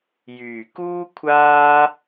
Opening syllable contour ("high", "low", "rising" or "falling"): low